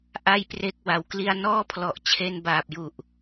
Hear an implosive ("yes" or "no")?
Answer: no